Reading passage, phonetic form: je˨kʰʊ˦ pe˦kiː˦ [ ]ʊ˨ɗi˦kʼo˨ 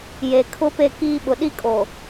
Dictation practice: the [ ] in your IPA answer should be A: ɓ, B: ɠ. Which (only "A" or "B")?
A